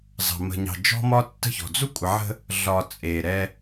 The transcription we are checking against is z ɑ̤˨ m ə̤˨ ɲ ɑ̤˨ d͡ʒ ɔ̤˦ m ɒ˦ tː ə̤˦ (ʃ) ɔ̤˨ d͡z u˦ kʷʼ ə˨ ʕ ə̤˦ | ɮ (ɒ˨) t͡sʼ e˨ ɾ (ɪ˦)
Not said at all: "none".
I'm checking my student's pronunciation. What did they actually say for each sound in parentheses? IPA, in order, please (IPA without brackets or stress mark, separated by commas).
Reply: ç, ɒ˨, ɛ˦